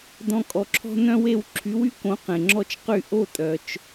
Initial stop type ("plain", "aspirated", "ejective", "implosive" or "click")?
plain